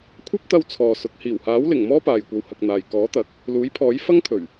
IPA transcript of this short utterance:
kʷʰ ɐ˥ p̚ t̪ ɐ˧ w t͡sʰ ɔː˨ s ʊ˨˥ k̚ h iː˨˩ w h aː˨˥ w l ɪ˨˩ ŋ m ɔː˥ p aː˨ j kʷ ɐ˧ w h ɐ˧ k̚ n̪ aː˨ j k ɔː˨˥ t̪ ɐ˨˥ k̚ | l uː˨˥ j pʰ ɔː˨˥ j f ɐ˥ ŋ t̪ʰ ɵ˨˩ ɥ

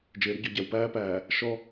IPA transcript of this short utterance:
d͡ʒ ɪː˨ ɾ ʊ˦ ɟ ɔ˨ ɟ æ˨ w p æː˦ p æː˨ | ʃ ɔ˦

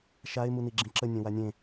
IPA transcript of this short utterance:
ʃ a ɪ̯ m u n i ɡ͡ǁ ĩ ǁ ə nʲ ẽ w a nʲ ẽ

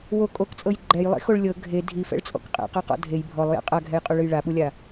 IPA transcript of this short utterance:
w o kʼ o k t͡sʼ ɤ j ɡ͡ǃ ɛ j lˠ ḭ x o ɭ lʲ ɤ ɡʱ e dʱ i f ɛ̰ ɭ t͡sʼ ɔ̰ k qʼ ɛ̰ q a q ɔ̰ dʱ e j bʱ ɔ lˠ j ɛ̰ qʼ a ɡʱ ɛ j qʼ u ɭ ɯ j ɭ a ɓ u lʲ a

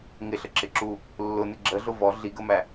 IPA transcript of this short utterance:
ŋ ɪ ɬ ə ǁ ɪ ǁ u | lː ʊ n ɪ ɡ͡ǁ ə ɮ ʊ v ɔ ɮ i ɡ ə m æ

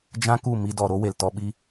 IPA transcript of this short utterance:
d͡ʒ ã˦ k u˦˨ m i˧ d ɔ˨ ɾ o˦ w e˨ l t ɔ˧ ɓ i˦

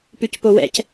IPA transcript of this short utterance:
p ʉ c p o w ɛ̰ c

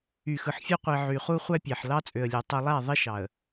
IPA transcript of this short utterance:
y˨ x ɯ˨ ħ fʲ ø˦ qʷ i˨ ʕ y˨ χ u˦ χʷ æ˦ pʲ æ˨ ħ l ɑ˦ t͡sʼ ø˨ ə̯ lʲ ø˨ tˤ ɯ˨ lˠ æ˦˨ ðˤ i˦ ʃ ɑ˨ ə̯

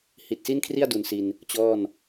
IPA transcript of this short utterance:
h i˨˩ t̚ s i˥˩ n kʰ r i˥˩ a̯ d u˨˩ n s i˧ n | t͡ɕ ɔː˥˩ n

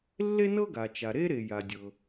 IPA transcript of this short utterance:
lː e˥ n ɤ˥ ɡ a˩ t͡ʃ a˩ ɾ e˥ ɾ e˩ j a˩ dʲ ɤ˩

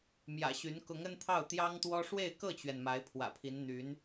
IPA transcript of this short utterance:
m j ä̰˨˩ ɕ y˧˥ n k ʊ˧˥ ŋ ə˥ n t̪ʰ ɑ˥˩ ʊ̯ t̪ j ɑ˥ ŋ t̪ w ɔ˥ ʂ w e˥˧ ɪ̯ k ɤ˥˩ t͡ɕ ɥ ɛ˩ n m a˧˥ ɪ̯ pʰ w ä̰˨˩ pʰ i˧˥ n n̪ y˧˥ n

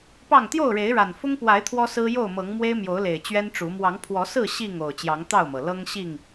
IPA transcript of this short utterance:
p ɑ˥˨ ŋ t̪ j o˥˨ ʊ̯ ɻ e˨˦ ɪ̯ ɻ a˨˩ n f ʊ˦ ŋ p w a˨˦ ɪ̯ t̪ʰ w ɔ˦ s ɹ̩˦ j o˥˨ ʊ̯ m ɤ˨˦ ŋ m w e˦ ɪ̯ m j o˨˦ ʊ̯ l e˨˩ ɪ̯ t͡ɕ ɥ ɛ˦ n ʈ͡ʂ u˨˦ m w ɑ˨˦ ŋ pʰ w ɔ˨˦ s ɹ̩˥˨ ɕ i˥˨ ŋ o˨˩ ʊ̯ t͡ɕ j ɑ˨˦ ŋ t̪ ɑ˥˨ ʊ̯ m ɤ˩ l ɤ˦ ŋ ɕ i˥˨ ŋ

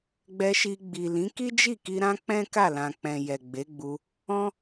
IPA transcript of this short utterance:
ɡ͡b ɛ˧ ʃ i˧ ɡ͡b i˨ l ĩ˨˦ k i˦ d͡ʒ i˦˨ k i˧ ɾ ã˦ k͡p ɛ̃˦ k a˦˨ l ã˨ k͡p ɛ̃˨ j ɛ˨ ɡ͡b e˨˦ ɡ͡b u˧ | ɔ̃˦

